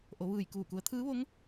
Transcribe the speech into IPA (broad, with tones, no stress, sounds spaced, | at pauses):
ʔ o˩˧ ʋ ɯː˧˩ j k uː˧˩ k u˩˧ ə̯ t̪ʰ ɯː˧˥ ʋ o˧˥ ŋ